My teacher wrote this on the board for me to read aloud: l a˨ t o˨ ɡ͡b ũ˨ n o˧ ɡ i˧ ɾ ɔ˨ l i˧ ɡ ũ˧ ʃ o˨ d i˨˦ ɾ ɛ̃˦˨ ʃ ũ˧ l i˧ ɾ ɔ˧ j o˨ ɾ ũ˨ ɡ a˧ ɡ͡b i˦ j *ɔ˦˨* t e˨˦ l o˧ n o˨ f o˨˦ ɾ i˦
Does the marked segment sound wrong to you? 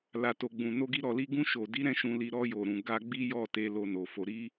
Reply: no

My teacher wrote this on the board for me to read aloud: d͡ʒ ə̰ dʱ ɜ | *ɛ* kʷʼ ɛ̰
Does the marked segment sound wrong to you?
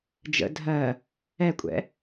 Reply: no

